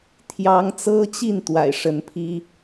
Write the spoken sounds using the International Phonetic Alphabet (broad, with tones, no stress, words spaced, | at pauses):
t̪ʰjɑ˨˦ŋt͡sɤ˦t͡ɕi˥˨n t̪wa̰˨˩ɪ̯ʂə˨˦npʰi˦